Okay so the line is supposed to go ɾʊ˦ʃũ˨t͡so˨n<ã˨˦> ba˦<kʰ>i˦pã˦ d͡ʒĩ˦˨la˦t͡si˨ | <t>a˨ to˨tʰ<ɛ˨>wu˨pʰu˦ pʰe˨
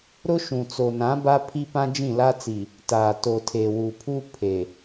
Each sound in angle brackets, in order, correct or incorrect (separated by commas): correct, incorrect, correct, incorrect